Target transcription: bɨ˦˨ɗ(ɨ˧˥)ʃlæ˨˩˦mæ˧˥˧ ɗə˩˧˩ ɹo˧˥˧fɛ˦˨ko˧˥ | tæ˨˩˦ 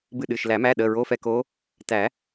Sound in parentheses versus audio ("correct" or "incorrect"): incorrect